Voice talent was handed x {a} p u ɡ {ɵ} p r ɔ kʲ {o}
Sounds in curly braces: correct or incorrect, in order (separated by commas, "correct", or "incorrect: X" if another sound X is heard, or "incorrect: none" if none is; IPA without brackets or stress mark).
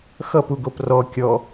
incorrect: ʌ, incorrect: o, incorrect: ɔ